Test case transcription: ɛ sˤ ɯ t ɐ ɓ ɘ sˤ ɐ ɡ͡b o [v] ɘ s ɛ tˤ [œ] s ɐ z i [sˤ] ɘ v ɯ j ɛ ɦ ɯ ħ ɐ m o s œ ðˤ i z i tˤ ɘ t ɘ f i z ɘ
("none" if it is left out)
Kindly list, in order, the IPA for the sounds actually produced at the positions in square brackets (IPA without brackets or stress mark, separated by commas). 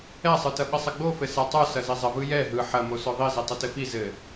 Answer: f, œ, zˤ